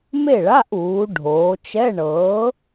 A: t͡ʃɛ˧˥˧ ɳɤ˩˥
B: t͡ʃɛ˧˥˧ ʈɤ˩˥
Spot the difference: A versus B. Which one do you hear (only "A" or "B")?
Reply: A